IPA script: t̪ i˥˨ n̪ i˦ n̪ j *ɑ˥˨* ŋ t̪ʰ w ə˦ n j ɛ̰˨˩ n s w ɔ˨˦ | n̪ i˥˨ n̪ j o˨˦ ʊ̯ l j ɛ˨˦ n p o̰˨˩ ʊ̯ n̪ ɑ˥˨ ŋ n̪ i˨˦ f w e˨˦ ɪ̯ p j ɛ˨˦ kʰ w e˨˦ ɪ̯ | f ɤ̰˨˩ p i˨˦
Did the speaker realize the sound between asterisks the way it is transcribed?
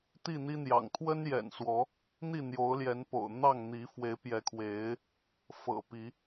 no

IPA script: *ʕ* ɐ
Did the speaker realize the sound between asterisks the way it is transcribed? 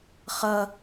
no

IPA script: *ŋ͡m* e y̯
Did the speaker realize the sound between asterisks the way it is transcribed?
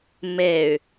no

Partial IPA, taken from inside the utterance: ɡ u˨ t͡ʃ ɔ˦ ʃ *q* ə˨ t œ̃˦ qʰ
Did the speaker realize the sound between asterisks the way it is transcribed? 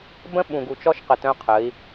yes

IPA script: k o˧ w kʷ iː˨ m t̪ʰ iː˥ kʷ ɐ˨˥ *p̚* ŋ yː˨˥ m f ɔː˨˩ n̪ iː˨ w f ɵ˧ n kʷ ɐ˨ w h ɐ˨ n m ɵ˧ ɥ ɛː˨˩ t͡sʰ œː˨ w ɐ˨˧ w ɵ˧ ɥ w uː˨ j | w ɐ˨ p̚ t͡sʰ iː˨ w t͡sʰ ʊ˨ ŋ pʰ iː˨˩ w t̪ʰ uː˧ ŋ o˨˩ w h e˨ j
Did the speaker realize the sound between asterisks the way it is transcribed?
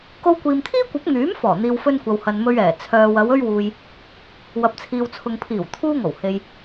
yes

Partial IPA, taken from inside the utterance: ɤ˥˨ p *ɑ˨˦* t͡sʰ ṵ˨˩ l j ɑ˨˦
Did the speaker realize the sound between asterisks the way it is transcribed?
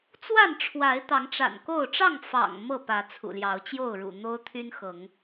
no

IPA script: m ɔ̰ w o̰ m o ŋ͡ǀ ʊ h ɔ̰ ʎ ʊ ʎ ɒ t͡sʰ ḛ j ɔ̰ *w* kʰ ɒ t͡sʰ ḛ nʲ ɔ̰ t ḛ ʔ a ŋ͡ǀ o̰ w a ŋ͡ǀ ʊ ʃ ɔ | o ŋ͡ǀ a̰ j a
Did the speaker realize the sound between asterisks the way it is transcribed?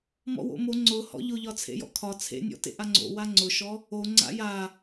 no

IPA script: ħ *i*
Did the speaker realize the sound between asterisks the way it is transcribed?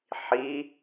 yes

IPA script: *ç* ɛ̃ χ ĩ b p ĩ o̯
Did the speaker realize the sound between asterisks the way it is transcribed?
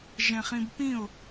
no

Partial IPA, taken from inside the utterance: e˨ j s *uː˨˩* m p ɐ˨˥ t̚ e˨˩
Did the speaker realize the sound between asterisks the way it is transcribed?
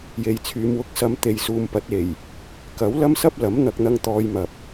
no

